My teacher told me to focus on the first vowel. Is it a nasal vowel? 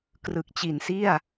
no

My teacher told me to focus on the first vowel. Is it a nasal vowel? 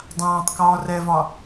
yes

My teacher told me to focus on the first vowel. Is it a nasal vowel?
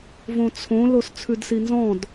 yes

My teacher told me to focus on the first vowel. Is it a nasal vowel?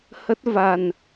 no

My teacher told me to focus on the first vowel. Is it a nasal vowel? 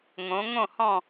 yes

